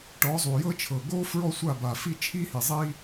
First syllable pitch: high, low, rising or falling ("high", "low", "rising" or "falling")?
rising